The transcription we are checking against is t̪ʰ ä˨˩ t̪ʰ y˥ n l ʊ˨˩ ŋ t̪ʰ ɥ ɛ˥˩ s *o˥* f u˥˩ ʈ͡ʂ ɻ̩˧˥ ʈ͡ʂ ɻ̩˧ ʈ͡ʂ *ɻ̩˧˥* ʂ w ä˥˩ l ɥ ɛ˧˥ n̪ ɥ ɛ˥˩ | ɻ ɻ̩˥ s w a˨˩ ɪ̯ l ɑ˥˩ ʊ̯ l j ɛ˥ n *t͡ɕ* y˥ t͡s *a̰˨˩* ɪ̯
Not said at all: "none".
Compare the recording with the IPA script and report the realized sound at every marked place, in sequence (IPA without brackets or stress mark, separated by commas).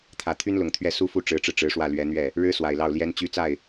u˥, ɻ̩˧˥, t͡ɕ, a˥˩